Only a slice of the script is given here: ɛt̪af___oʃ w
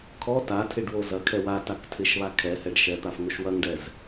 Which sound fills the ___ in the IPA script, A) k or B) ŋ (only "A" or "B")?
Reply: B